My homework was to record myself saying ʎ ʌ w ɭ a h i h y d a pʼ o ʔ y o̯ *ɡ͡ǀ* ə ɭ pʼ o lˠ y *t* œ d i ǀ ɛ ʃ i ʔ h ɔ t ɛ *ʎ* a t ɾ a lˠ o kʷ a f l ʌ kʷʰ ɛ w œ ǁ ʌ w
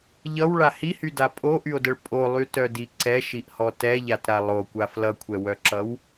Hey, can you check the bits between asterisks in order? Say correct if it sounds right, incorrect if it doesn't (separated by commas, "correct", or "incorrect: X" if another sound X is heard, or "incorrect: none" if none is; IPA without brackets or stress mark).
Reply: incorrect: d, correct, correct